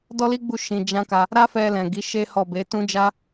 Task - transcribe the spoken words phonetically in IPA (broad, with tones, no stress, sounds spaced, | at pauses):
d ɔ˦ l i˦ ɡ͡b u˦˨ ʃ ĩ˧ d͡ʒ ã˦ k a˧ | ɾ a˦ f ɛ˧ l ɛ̃˨ ɡ i˨˦ ʃ e˦ h ɔ˦˨ b e˨˦ t ũ˦ d͡ʒ a˦